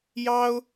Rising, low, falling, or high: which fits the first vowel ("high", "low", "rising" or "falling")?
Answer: high